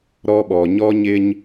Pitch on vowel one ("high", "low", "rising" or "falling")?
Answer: high